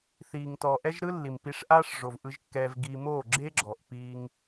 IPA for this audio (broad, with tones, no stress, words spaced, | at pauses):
θiː˨ŋtɔ˨ ʔɛ˦ʒɾɯ˦ lːi˨mpi˧ʂʔaː˦ʂʐo˨v ʔɯ˧ʒ kːɛː˧vɡiː˧ moː˦˨ɡ͡ǁe˦ɡ͡ǁɔ˨ʔ piː˧ŋ